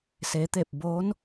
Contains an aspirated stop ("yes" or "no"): no